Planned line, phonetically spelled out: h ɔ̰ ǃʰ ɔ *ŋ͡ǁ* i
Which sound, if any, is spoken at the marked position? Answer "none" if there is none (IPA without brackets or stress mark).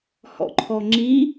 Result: ŋ͡ǁ